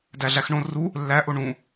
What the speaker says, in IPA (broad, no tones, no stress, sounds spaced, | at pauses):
d æ ɮ æ x ɳ õ r u | lː æ ʔ o ɳ ũ